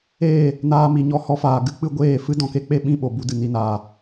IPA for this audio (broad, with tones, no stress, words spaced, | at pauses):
eː˦˨ | naː˧mi˨ ɲɔ˦˨hɔ˦faː˨ ɡɨ˦ k͡pɨ˧ɡʷeː˦˨fɨ˦ dɔ̃˨ke˦k͡pe˦ ɓĩ˦˨ɓo˨ bu˦dɨ˨ni˨˦naː˨